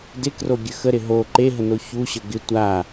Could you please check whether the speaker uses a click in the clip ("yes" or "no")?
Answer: yes